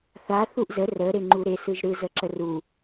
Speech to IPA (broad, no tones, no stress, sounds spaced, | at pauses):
θ a θ u ʔ z ə r ə ɾ e ŋ͡ǃ u ɾ e s ɯ ʒ ɾ ɯ z ə ǁ ə r u